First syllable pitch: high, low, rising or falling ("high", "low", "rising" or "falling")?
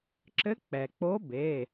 rising